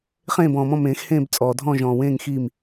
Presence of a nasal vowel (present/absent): present